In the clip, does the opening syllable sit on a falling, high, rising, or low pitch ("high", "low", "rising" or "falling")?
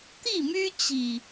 falling